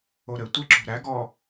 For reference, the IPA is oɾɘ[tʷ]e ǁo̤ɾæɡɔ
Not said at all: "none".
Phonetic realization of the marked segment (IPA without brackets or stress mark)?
tʷ